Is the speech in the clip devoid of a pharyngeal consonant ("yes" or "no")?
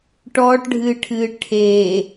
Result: yes